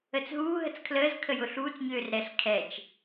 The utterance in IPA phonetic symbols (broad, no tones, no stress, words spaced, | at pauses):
ət͡sɦuː ɦət͡skʰləːz kʰəjʊɬuːt͡s ɲøːrɾɛɬ kʰɛt͡ʃ